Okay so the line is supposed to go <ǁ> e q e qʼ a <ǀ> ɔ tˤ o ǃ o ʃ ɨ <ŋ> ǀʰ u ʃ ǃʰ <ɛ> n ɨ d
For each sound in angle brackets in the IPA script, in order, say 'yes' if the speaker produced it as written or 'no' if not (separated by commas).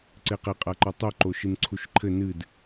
no, no, no, no